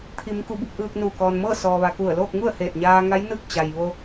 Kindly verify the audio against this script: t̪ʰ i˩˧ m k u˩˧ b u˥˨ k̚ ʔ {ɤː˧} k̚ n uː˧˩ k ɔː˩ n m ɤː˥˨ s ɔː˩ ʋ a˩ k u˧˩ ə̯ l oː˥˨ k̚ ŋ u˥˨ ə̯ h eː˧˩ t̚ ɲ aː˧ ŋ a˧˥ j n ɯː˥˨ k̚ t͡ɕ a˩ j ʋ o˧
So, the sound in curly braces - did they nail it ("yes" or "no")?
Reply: no